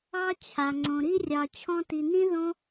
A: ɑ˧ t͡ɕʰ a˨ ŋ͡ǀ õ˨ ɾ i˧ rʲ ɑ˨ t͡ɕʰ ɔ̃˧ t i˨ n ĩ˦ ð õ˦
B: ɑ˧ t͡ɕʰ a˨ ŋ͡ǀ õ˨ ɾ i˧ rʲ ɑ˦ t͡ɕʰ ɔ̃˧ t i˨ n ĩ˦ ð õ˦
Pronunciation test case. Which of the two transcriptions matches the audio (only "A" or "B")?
A